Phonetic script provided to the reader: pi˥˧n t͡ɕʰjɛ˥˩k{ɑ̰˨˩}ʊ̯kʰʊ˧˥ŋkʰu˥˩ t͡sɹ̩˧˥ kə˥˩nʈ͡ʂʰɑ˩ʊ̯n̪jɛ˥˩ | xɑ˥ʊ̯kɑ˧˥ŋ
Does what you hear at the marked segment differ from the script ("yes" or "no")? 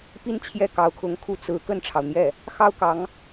yes